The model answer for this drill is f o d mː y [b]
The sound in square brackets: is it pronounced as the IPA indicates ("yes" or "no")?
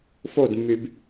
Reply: yes